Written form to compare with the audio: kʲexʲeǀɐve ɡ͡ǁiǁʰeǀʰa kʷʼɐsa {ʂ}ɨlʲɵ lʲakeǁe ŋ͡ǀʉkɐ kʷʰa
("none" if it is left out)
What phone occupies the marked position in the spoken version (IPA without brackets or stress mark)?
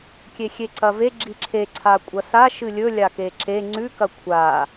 ʃ